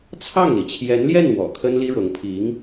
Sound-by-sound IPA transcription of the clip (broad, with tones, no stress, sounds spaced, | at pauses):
t͡sʰ ɑ˥˩ ŋ l i˩ t͡ɕʰ j ɛ˧˥ n l j ɛ˥˩ n w ɔ̰˨˩ kʰ ə˥ n l i˥ ɻ ɤ˧˥ ŋ pʰ i˧˥ ŋ